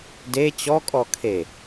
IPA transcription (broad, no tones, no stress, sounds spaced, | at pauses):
d e t͡ɕ ɔ kʼ ɔ kʰ e